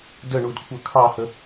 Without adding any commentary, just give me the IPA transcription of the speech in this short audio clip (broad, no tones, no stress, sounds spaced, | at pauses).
d ə ɳ u d kʷʰ ə˞ kʰ ɑ h ə